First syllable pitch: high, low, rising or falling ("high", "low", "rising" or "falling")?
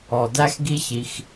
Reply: low